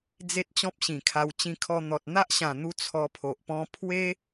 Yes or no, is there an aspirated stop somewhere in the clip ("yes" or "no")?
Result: yes